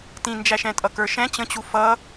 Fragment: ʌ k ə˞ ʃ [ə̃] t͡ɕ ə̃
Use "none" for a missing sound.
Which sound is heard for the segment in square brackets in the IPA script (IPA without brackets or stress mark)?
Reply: ɛ̃